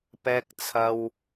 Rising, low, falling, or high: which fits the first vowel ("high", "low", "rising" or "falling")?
high